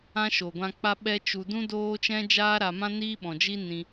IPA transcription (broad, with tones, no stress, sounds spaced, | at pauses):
ã˦ ʃ o˨ ɡʷ ã˧ k͡p a˦ ɓ ɛ˦ t͡ʃ u˧ d ũ˦ d oː˦ t͡ʃ ɛ̃˦ d͡ʒ aː˦ ɾ a˧ m ã˦ n iː˦ ɓ ɔ̃˨ d͡ʒ i˦ n ĩ˧